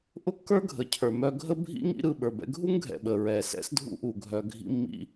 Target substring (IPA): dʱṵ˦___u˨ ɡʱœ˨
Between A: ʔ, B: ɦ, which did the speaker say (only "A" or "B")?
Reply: A